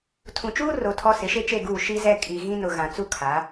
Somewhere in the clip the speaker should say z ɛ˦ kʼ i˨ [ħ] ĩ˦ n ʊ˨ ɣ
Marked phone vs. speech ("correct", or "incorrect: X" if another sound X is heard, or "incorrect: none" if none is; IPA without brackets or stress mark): incorrect: ɣ